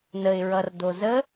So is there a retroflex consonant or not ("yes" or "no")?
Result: no